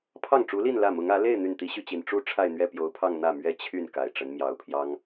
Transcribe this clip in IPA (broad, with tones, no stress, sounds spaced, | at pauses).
pʰ ɑ˥˩ ŋ ʈ͡ʂ u˧˥ l i˥˧ n l ä˥˩ m ʊ˧˥ ŋ ä˧˥ l e˥˧ ɪ̯ n̪ y˥˩ n t̪ i˥ ɕ y˥˩ t͡ɕ i˨˩ n ʈ͡ʂ u˥ ʈ͡ʂʰ a˥˧ ɪ̯ n̪ ɥ ɛ˥˩ p j o˧˥ ʊ̯ pʰ ɑ˥˧ ŋ n̪ ä˥˩ m ɥ ɛ˥ t͡ɕʰ y˥˩ n k a˨˩ ɪ̯ ʈ͡ʂ ə˧˥ n m j ɑ˧˥ ʊ̯ pʰ j ɑ˥ ŋ